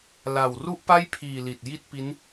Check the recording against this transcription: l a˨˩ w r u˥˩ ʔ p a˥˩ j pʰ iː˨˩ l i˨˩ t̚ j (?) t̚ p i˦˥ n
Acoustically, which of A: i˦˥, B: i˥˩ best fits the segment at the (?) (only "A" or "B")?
B